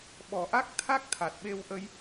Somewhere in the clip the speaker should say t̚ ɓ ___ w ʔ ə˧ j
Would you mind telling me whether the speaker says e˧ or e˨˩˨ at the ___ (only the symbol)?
e˧